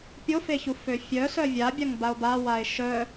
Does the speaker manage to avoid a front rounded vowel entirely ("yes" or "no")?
no